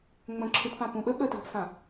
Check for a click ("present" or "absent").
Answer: present